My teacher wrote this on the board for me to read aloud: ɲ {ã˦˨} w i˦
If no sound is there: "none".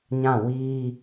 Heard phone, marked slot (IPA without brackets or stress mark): ã˦˨